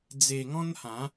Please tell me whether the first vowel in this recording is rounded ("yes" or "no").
no